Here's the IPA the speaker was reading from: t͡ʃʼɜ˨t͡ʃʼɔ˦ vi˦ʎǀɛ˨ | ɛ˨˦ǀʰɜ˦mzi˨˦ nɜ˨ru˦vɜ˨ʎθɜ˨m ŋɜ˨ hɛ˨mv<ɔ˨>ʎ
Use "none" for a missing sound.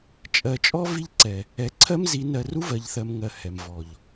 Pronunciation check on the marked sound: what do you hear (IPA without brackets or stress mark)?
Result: ɔ˨